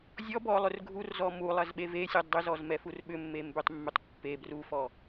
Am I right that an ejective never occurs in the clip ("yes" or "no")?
yes